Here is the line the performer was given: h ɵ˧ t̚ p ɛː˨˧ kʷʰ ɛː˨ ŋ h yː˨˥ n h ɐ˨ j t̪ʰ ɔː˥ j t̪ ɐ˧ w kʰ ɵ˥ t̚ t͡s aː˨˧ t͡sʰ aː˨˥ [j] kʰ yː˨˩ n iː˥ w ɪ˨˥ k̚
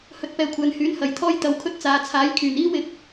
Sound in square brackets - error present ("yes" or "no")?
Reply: no